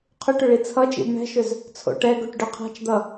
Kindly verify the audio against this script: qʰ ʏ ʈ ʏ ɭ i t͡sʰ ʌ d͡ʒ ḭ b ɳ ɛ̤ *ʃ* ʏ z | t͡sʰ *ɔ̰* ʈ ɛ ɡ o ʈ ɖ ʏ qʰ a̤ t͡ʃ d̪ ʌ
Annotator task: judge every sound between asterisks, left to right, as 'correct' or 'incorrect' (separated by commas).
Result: correct, incorrect